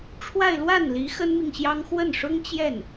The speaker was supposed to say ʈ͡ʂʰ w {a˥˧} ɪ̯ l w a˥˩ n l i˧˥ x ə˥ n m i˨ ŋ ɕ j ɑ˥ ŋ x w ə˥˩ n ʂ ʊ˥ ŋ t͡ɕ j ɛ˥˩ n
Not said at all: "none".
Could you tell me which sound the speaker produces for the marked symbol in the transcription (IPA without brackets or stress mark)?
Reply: a˥˧